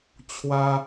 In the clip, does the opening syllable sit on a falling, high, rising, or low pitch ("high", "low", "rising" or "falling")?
high